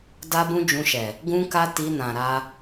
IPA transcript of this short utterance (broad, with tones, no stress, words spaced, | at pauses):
da˦bũ˦ d͡ʒũ˧ʃɛ˨ | ɡũ˦ka˦ ti˧nã˨ ɾa˧